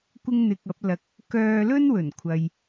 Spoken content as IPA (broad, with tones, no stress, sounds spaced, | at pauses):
kʷ ɪ˥ ŋ n̪ ɪ˧ k̚ ɐ˨˥ p̚ l ɐ˨ k̚ | k œː˧ l ɵ˥ n w ɵ˨˩ n kʷʰ ɐ˨ j